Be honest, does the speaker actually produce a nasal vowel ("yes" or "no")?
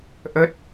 no